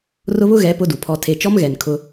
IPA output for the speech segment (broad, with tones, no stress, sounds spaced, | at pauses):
r ʊ˦ β ʊ˦ ɣ ɛ˨˦ p ʊ˦ d u˨ pʰ ɔ˦ tʰ e˦ t͡ʃ ɔ˦ m ɣ ɛ˨ n kʰ ʊ˦